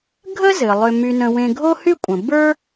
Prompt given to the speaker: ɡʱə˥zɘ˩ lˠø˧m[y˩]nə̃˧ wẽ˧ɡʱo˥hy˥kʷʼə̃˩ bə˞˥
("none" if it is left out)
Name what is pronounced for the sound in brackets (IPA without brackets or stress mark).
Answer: y˧